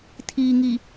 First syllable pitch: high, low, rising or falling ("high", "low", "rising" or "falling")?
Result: low